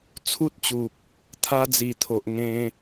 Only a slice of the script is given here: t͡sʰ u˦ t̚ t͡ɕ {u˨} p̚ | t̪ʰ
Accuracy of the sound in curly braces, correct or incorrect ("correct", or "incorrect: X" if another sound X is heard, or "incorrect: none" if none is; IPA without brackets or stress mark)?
correct